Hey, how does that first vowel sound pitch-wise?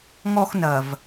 high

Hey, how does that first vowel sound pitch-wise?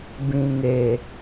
low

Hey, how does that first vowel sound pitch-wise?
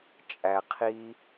low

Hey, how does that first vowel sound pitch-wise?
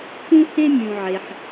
high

